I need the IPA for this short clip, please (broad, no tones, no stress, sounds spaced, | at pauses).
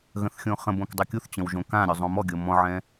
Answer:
ɣ ə̃ θ xʲ õ χ ə̃ b õ k dˤ ɤ kʲ u θ t͡ɕ ə̃ w ʒ õ k ã ɾʲ o zˤ õ m ɔ ɡʲ ɤ m ɔ̃ ʕ ɛ̃